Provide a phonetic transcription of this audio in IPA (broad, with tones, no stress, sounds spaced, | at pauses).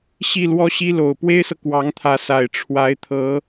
ɕ i˥˩ l w ɔ˥ ɕ i˥ l o˨˩ ʊ̯ p w e˥ ɪ̯ s ɤ˨ k w ɑ˧˥ ŋ t̪ʰ ä˧˥ s a˨˩ ɪ̯ ʈ͡ʂʰ w a˧˥ ɪ̯ t̪ʰ ɤ˧˥